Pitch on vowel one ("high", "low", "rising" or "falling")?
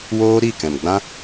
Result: high